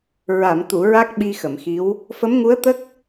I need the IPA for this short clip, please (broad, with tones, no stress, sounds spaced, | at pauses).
ɹ a˨˩˨ m t̪ u˨˩˨ ɹ a˦˥ k̚ ɓ i˧ x ə˨˩˨ m x i˧˥ w | f ə˧˥ m ŋ u˧˥ ə̯ t̪ ə˦˥ k̚